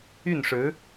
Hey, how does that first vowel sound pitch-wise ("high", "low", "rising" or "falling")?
falling